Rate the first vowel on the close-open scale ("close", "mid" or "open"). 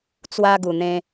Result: open